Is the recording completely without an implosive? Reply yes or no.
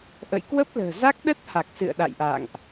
no